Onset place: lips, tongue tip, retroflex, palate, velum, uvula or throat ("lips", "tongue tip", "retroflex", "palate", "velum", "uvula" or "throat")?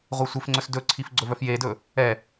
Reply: uvula